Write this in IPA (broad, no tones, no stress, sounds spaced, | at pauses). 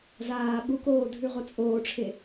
z aː ɓ u k oː dʱ ʉ ʁ o t͡sʼ oː ʈ͡ʂʰ e